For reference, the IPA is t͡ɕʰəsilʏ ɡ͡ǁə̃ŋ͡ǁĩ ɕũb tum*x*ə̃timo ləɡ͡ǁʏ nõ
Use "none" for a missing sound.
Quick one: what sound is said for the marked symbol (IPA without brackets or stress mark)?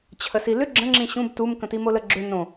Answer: k